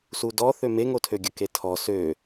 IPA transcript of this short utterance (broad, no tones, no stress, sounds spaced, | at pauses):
s u d ɔ θ ø m e ŋ o tʰ ø ɡʲ ə k e tʰ ɔ s ø